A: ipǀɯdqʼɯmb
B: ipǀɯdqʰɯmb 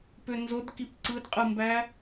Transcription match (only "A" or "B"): A